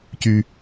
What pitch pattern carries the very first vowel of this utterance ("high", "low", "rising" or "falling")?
high